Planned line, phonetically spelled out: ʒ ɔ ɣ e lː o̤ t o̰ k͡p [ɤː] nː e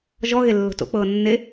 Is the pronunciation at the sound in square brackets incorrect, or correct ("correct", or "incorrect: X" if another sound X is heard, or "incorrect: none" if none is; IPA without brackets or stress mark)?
correct